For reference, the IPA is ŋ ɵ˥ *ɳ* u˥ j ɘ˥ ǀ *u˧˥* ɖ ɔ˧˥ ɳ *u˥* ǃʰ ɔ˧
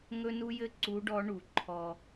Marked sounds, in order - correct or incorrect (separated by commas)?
incorrect, correct, incorrect